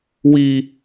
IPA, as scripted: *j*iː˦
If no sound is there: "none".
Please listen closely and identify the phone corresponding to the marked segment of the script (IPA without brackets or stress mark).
w